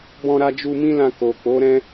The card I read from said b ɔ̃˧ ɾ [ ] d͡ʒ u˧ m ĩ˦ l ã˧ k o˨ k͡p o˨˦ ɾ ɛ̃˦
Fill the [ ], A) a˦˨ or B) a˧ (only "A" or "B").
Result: B